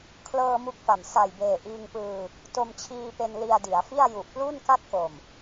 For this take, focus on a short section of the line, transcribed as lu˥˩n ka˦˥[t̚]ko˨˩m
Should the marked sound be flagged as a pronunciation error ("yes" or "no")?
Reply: no